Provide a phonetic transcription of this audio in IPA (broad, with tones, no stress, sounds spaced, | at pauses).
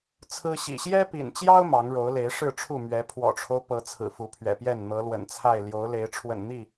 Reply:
t͡sʰ ɹ̩˦ ɕ ḭ˨˩ ɕ j ɛ˦ p ḭ˨˩ n t͡ɕ j ɑ˦ ʊ̯ m ɑ˨˦ ŋ ɻ o˨˦ ʊ̯ l e˨˦ ɪ̯ ʂ ɻ̩˥˨ ʈ͡ʂʰ u˥˨ m ɥ ɛ˨˦ pʰ w ɔ̰˨˩ ʈ͡ʂʰ o˦ ʊ̯ p ɤ˨˦ t͡sʰ ɹ̩˨˩ f u˨˦ pʰ ɥ ɛ̰˨˩ p j ɛ˥˨ n n̪ ɤ˨˦ l w ə̰˨˩ n t͡sʰ a˥˨ ɪ̯ l j o˨˦ ʊ̯ l e˨˦ ɪ̯ ʈ͡ʂʰ w ə̰˨˩ n n̪ i˥˨